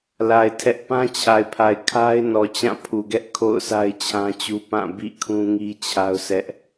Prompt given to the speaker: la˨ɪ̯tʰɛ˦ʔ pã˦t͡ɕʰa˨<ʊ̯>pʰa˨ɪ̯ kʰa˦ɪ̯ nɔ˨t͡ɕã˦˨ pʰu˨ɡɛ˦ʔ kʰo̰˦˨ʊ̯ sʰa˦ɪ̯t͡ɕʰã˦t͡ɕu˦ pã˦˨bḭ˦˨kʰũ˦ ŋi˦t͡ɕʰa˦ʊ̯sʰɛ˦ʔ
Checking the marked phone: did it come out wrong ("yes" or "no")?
yes